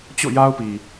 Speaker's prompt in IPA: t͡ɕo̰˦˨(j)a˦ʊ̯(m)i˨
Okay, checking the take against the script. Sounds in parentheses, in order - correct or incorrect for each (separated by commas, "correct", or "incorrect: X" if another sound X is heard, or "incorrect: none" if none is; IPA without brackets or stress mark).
correct, incorrect: p